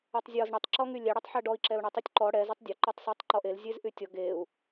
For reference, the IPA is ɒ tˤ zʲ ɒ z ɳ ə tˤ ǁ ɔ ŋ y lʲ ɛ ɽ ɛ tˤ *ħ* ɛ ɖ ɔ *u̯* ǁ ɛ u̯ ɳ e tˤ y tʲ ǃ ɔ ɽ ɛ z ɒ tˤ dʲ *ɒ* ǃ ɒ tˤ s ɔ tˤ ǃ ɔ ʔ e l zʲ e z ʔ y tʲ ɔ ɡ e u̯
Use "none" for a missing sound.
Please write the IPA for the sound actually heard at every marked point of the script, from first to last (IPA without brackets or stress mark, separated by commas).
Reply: ħ, i̯, ɒ